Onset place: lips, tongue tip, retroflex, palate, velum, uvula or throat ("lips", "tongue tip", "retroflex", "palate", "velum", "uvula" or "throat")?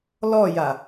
tongue tip